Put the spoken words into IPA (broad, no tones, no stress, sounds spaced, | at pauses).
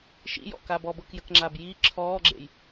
ʃ ḭ j ɔ̰ k a b ɔ b ɤ k j ə k ŋ͡ǁ a b j i ǁʰ ɔː ɡ͡ǁ ḛ j